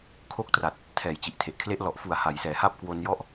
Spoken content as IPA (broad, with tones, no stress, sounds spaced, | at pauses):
kʰ o˥˩ k̚ t r a˨˩ t̚ | tʰ ɛː˩˦ j t͡ɕ i˨˩ ʔ tʰ e˨˩ ʔ kʰ l e˦˥ ʔ l ɔ˨˩ ʔ f u˨˩ a̯ h a˩˦ j s ɛː˩˦ h a˥˩ p̚ k w o˧ n j ɔ˦˥ ʔ